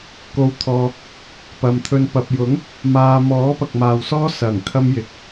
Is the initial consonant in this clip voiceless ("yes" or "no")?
yes